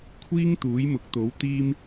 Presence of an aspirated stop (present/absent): present